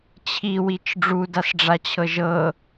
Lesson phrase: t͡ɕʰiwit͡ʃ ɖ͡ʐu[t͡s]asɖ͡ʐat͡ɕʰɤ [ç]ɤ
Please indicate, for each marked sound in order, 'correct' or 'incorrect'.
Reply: incorrect: d, incorrect: ʒ

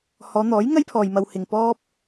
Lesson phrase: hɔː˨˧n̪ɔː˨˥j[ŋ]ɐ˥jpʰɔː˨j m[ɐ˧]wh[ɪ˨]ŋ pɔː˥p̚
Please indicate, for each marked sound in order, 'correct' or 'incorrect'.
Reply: correct, correct, correct

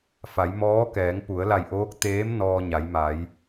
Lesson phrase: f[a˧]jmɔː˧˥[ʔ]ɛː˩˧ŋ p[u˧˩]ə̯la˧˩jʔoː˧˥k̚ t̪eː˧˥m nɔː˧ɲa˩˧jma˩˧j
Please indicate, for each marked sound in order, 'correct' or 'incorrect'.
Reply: incorrect: a˩˧, incorrect: k, incorrect: u˩˧

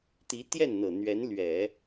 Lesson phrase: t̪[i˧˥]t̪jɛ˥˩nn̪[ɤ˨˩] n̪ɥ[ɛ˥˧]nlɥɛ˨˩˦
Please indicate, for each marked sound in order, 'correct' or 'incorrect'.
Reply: correct, correct, incorrect: ɛ˧˥

